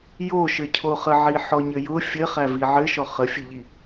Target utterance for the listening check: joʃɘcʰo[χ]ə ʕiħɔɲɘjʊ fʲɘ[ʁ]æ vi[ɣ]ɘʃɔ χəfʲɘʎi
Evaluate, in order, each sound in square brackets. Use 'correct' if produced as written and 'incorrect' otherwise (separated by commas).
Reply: correct, incorrect, incorrect